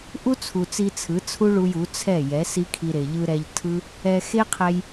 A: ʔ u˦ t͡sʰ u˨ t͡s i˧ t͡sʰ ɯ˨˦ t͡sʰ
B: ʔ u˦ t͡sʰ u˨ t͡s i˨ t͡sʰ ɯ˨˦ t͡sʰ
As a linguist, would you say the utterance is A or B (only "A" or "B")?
A